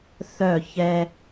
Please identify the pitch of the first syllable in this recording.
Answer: falling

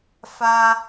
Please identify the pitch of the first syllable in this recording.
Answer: high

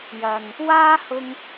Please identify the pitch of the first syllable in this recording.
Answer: low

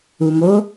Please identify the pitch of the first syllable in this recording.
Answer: low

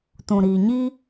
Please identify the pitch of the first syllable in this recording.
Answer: low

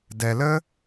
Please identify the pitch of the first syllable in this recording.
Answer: low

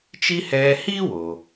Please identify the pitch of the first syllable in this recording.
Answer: high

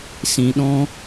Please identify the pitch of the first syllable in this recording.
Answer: low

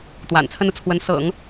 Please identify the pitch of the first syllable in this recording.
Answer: low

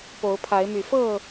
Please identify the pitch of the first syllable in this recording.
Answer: rising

